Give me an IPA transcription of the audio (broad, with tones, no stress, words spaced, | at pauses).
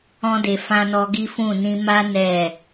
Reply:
ɔ̃˧de˨fã˧nɔ˧ ɡi˦fũ˦˨ nĩ˧ma˦ nɛ˦˨